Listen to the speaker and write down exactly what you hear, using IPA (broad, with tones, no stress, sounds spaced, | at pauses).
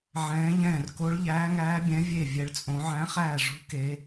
ʕ ɛ̃ː˨˦ ʎ ɛ̃ː˧˩ r k o˨˦ ɭ ʎ æː˨˦ ŋ æː˨˦ bʲ ɛ̃˨˦ vʲ e˧˩ vʲ ɛ˨˦ ɭ t͡sʼ õ˨˦ ʕ æ̃˨˦ χ æː˧˩ ʐ ṳ˨˦ k e˨˦